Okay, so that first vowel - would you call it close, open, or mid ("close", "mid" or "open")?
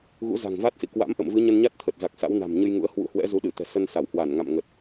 close